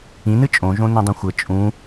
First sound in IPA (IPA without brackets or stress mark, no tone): ĩ